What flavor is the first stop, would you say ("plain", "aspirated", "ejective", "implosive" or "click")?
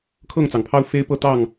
aspirated